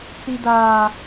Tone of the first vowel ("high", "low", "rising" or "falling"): low